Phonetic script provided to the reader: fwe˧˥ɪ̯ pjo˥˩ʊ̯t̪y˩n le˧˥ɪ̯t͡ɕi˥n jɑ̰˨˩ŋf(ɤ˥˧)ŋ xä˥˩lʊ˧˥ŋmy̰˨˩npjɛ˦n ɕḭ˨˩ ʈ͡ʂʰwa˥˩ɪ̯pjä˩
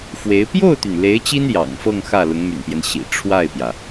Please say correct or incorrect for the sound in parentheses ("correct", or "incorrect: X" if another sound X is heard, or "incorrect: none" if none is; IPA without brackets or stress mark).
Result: correct